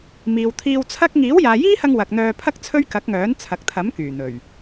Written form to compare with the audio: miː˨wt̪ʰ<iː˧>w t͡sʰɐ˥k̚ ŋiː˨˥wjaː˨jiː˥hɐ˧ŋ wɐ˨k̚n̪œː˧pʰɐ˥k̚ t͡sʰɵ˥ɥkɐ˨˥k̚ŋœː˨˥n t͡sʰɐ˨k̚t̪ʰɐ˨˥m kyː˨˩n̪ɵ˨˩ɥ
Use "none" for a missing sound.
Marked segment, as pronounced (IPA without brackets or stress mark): iː˧